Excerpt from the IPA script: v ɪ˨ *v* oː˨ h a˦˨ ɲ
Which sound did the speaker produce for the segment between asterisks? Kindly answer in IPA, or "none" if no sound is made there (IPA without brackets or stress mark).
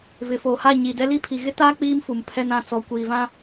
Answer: f